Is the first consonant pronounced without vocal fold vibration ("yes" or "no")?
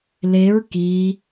no